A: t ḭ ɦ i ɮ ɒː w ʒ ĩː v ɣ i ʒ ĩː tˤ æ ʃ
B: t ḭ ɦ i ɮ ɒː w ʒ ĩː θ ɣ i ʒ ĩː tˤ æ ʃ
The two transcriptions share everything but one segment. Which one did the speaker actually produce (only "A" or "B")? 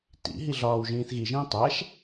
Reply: B